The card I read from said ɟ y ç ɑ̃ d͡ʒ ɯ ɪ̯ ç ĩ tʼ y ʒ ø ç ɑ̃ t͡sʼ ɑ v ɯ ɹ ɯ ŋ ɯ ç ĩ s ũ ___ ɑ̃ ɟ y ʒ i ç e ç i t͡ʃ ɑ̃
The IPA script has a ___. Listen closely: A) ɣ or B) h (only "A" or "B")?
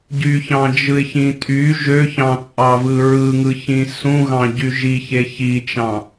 A